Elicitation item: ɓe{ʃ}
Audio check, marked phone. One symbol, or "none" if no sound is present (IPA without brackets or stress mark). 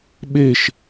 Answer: ʃ